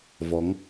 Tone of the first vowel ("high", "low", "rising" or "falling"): rising